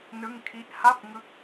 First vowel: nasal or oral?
oral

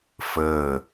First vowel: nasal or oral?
oral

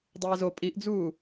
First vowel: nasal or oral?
oral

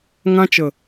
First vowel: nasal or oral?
nasal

